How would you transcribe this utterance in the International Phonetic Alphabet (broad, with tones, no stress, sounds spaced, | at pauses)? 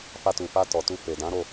f a˧ t u˨ f a˧ t ɔ˨ t u˧ f e˨ d ã˨˦ ɾ o˦˨